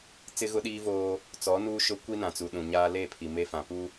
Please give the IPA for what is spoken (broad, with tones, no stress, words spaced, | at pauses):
t͡sɪ˦ɣʊ˦ɗiː˦voː˦ | t͡sɔ˨˦nuː˦ʃʊ˦ kʷi˦nã˨t͡su˨ ɗũ˨ɲaː˦ le˦˨pʰi˨ me˦fã˨pu˦